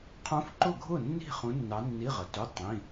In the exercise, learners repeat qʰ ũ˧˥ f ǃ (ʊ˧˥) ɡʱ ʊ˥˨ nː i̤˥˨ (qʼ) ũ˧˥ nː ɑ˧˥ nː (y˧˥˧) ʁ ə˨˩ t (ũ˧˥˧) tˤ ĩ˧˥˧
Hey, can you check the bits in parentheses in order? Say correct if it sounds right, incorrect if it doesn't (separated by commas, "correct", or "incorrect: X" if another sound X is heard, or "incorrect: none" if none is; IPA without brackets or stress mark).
incorrect: ʊ˥˨, incorrect: χ, incorrect: i˧˥˧, incorrect: u˧˥˧